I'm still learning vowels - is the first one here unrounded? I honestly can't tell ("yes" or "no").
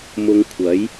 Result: no